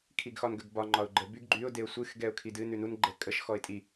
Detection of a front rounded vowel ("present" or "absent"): present